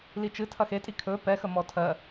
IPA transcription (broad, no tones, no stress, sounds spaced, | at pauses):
l i t͡ʃ ɨ tʰ ɐ x e tʼ i kʰ ɵ p ɛ x ə m ɔ tʰ ɜ